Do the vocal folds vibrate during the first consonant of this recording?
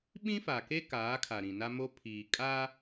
yes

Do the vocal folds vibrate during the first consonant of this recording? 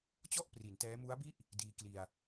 no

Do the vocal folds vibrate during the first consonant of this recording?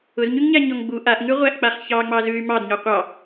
yes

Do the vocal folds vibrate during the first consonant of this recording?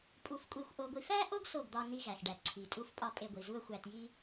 no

